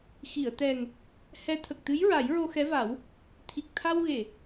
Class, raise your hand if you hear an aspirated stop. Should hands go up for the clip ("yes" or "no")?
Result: yes